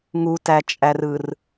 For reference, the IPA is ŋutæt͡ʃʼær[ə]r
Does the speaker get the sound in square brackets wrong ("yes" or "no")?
yes